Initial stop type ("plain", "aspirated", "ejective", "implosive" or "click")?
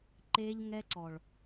click